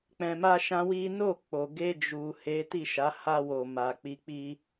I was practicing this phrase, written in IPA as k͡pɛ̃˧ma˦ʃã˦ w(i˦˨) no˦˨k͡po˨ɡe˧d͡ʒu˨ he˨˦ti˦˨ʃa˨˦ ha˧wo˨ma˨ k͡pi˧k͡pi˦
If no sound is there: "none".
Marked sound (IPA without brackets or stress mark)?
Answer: i˦